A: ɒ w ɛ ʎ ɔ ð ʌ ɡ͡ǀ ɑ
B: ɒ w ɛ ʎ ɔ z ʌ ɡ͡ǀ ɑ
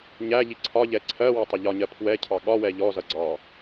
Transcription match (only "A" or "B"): B